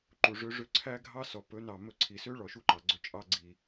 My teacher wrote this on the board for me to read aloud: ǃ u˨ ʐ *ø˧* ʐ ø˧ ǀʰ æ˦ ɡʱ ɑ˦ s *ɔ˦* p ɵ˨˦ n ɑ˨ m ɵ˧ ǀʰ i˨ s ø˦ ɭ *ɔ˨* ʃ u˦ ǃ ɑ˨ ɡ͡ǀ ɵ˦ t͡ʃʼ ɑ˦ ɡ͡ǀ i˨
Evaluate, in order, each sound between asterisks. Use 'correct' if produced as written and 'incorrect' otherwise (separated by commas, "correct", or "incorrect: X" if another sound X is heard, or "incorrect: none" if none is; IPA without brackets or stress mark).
correct, incorrect: ɔ˨, correct